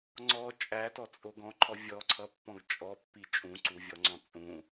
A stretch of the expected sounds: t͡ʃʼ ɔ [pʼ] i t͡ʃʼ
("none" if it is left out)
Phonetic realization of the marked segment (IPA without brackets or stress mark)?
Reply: pː